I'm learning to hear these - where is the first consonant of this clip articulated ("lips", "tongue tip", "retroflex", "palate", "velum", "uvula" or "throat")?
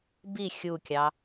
lips